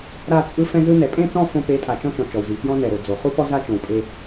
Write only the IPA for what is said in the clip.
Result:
ɾa˦˨ t͡sʼɯ˦ fɛ̃˦zɯ˦ nɛ˨ pʼẽ˦˨t͡sɔ̃˦˨ fõ˦ pe˨˦tʼa˨t͡ʃɔ̃˦t͡ʃɔ̃˨ t͡ʃɔ˨wzi˨ fjɔ̃˦nɛ˨ɾo˨d͡zo˨ χu˦ pɔ˦za˦ t͡ʃõ˨wpʼe˦

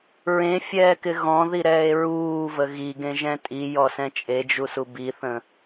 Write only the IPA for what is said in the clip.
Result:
ɹẽfʲɛːkɪ ɣɔ̃ðiɾɛːe̯ ɹuːvə ɣiɡẽʒɛ̃ tʼijɔsɛ̃ t͡ʃʼed͡ʒusu biθə̃

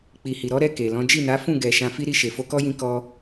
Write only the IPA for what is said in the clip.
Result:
k͡pi˨hi˨ɾɔ˨˦ɾɛ˦˨ ke˨lɔ̃˨˦ d͡ʒi˦˨na˨˦ fũ˦˨ɡɛ˨ ʃã˧fi˦ɾi˦˨ ʃe˨fo˧kɔ˦jĩ˧ kɔ˧

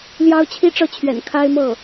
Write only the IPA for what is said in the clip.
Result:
ljɑ˥ʊ̯ t͡ɕʰi˥ʈ͡ʂɤ˥˩t͡ɕʰɥɛ̰˨˩n kʰa˥ɪ̯mɤ˥˩

